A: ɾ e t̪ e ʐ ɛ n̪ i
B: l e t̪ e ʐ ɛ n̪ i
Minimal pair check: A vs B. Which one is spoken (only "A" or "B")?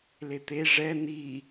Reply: B